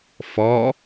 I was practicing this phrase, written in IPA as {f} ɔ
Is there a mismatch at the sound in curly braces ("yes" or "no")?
no